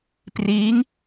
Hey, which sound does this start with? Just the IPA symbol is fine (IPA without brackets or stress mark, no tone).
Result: p